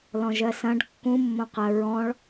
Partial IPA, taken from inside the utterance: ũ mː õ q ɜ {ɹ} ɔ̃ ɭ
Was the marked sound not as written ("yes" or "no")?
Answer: no